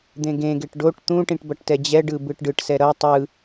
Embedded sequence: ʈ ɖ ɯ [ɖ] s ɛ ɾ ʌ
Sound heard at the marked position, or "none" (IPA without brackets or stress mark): ʈ